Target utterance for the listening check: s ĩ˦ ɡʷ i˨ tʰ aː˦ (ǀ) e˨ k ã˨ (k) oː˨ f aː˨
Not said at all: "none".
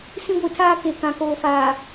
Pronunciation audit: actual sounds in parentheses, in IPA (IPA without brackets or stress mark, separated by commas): k, k